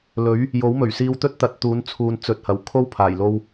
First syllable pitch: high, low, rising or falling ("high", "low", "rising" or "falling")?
rising